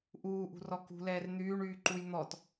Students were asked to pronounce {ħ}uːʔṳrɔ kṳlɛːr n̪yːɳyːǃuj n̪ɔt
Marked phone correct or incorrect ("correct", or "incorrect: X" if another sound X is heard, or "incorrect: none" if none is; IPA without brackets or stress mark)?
incorrect: ʔ